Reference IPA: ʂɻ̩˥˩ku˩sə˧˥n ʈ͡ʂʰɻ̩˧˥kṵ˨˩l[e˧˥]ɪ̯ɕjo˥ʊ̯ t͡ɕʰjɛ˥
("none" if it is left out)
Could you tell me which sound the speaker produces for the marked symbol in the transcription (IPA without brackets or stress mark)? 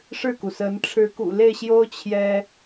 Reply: e˥˩